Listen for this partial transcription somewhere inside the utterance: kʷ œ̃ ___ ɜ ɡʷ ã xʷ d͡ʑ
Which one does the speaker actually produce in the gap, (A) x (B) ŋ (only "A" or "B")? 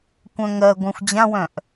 B